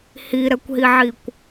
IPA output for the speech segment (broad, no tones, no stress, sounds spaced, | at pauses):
h i ɾ ɛ kʷ ɦ i ʕ i kʷ